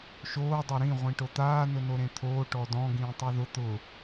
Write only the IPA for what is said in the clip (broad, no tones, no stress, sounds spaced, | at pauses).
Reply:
ʃ oː dˤ ɛ ɾ ĩ ʁʷ ĩ ʈ o t̪ aː n ʊ n o ɾ ẽ t̪ʰ oː ʈ ɔ d ɔ̃ ɡ ĩː tˤ u ð ʊ t̪ ʊ